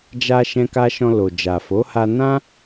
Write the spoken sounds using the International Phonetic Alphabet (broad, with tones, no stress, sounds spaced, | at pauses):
d͡ʒ a˧ ʃ ɛ̃˧ k a˧ ʃ ɔ̃˧ l o˨ d͡ʒ a˨ f o˨˦ h a˧ n ã˦